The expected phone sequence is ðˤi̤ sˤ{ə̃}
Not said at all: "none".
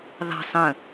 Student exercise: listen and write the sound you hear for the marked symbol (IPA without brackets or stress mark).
ə̃